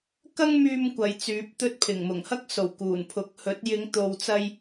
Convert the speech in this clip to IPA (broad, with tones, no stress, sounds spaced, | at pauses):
k ɐ˥ ŋ m yː˧ m kʷ ɐ˨˧ j t͡s yː˨˥ p̚ t̪ ɵ˥ t̚ pʰ ɪ˨˩ ŋ m ʊ˨˩ ŋ h ɐ˥ k̚ s o˨˩ w k uː˨˩ n pʰ ʊ˨˥ k̚ h ɵ˨˥ t̚ j ɪ˨˧ ŋ t̪ o˨ w t͡s ɐ˧ j